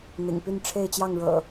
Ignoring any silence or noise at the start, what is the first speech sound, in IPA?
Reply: n̪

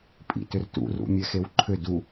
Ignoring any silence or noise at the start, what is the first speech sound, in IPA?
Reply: pʼ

